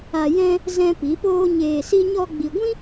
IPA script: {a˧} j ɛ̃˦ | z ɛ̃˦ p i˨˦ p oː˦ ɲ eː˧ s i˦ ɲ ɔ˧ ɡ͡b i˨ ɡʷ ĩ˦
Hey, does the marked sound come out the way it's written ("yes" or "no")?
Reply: yes